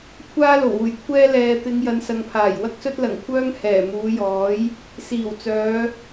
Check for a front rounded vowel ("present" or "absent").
present